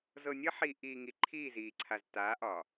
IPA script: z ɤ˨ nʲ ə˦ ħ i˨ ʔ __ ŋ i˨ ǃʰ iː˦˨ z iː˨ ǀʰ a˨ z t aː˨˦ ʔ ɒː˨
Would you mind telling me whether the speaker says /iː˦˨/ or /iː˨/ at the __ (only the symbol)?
iː˨